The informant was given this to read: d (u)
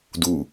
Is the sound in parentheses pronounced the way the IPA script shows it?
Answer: yes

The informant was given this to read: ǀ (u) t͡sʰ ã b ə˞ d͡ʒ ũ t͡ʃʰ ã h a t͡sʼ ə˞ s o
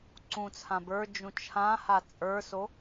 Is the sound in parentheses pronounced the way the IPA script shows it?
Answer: no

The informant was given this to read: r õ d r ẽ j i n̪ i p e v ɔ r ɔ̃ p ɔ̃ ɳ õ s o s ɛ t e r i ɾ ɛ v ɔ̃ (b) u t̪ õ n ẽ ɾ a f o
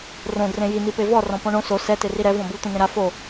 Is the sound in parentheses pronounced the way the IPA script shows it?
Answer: yes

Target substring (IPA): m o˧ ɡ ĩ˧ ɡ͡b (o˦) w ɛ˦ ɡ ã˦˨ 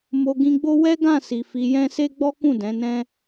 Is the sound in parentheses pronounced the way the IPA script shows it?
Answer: yes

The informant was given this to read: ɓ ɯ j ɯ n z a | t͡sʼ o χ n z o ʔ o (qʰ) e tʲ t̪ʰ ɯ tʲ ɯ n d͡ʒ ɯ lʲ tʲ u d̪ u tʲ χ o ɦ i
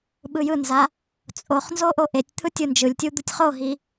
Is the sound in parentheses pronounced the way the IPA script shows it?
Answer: no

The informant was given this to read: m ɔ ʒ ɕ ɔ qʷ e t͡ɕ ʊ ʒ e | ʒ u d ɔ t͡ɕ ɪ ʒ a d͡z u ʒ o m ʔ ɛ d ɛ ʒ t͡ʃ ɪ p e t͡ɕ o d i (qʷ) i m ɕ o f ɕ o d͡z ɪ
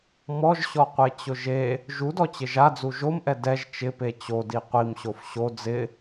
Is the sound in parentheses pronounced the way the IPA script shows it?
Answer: yes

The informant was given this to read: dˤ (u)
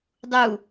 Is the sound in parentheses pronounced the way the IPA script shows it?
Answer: yes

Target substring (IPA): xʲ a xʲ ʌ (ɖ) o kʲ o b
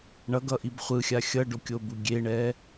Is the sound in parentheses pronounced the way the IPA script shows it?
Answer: yes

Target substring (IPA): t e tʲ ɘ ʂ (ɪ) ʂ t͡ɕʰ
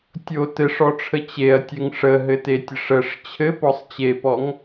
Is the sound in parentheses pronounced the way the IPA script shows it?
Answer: no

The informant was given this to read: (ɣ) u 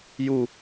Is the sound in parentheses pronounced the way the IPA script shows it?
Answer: no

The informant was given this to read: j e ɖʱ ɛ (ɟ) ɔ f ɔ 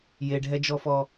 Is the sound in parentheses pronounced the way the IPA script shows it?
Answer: no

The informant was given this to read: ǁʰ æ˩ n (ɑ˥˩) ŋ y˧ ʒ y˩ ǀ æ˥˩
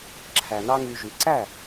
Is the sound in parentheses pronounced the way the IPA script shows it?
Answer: no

